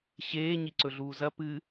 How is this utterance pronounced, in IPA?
ɕ eː ɲ i ǀ ɵ ɮ uː z ɐ p ɨ

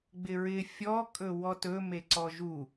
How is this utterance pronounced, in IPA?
ɡ͡b ɪ ɹ ɪ fʲ ɔ kʼ ɵ w ɔ t ɵ m e ǀ ɔ ʒ u

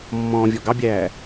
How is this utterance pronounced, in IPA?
mː ɔ̃ː vʲ ɔ ɡ ɑ bʲ æː

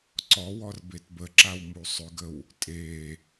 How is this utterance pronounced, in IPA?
ǀ ɔ w ɔ r b e t b ə ǁ a w m u sˤ ʏ ɡ ə w | tʼ e

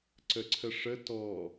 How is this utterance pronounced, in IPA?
ǀ ə ǀʰ ə ʂ ə t ɔ

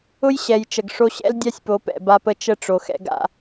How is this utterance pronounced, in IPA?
ʊ˦ j ɕ ɛ˨ j t͡ʃ ə˨ ɡ ʂ o˦ ɕ ɛ̰˦ l dʲ a˦ sʲ p o˨˦ p ɛ̰˨ b a˦ p ə˦ t͡ʃ ə˦ ʈ͡ʂ o˨ x ɛ̰˦ ɡ a̰˦

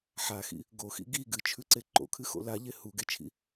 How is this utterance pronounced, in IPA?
ħ a x ḭ | ɡ o x ḭ ɡ i ɡ ɨ t͡ʃʰ ʉ ǀ e ǃ o̰ kʰ ɨ x o̰ l a ʎ e h u ɡ e t͡ʃʰ ḭ

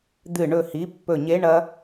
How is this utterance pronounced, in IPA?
d̪ ɨ˧˩˧ ɳ ɵ˨˩ h i˧˥˧ pː ɵ˧˩˧ ɲ e˧˥˧ ɳ ɐ˥

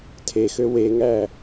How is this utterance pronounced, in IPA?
tʰ e x ø w e ŋ æ

